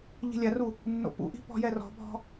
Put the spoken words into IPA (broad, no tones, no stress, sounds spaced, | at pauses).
ʎ i̤ lʲ a r u | nː o̰ p ṵ ʔ i̤ p ɔ̤ j ɛ r ɔ̤ bʱ ɔ̤